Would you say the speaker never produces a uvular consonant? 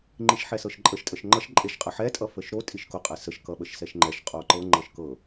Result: no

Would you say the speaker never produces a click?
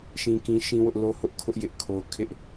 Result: yes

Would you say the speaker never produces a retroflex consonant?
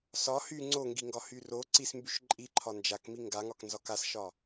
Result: yes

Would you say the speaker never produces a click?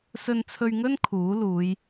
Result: yes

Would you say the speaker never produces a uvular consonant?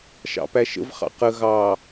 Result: no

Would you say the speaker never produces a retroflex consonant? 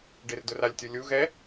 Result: no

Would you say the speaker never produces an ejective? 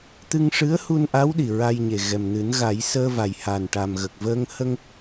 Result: yes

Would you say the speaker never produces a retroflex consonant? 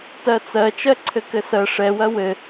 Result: no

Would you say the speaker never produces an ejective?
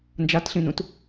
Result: yes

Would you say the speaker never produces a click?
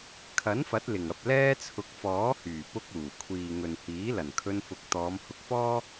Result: yes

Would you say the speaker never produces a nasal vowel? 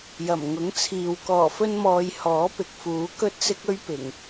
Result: yes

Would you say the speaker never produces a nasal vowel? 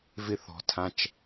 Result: no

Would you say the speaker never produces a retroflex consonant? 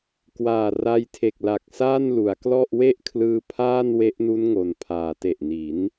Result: yes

